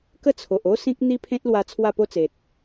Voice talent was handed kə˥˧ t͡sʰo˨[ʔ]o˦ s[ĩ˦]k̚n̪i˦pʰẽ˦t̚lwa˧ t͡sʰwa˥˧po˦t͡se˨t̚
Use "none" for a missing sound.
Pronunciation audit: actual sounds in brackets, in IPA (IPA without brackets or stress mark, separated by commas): ʔ, ĩ˦